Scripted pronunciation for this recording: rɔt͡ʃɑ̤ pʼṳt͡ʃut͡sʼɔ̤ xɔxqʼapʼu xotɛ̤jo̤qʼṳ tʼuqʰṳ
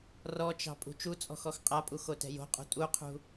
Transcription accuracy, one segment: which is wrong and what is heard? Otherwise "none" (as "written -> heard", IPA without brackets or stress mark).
none